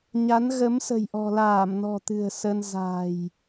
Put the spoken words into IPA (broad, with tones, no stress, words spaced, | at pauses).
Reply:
ɲa˨˦nɣə˨˦msə̤˨˩j ʔɔ̤˨˩laː˧˩mnɔ̤˨˩ t̪ɨ̤˨˩ə̯sə˧n za̤˨˩j